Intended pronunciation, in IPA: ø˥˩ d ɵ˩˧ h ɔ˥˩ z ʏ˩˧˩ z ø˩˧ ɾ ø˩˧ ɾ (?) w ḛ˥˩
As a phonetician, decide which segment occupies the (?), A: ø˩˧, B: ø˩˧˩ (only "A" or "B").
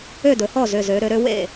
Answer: A